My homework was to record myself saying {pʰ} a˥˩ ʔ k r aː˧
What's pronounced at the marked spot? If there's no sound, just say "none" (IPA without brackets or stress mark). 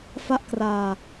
f